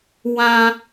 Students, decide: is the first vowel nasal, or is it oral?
nasal